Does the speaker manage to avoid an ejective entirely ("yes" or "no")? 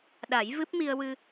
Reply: yes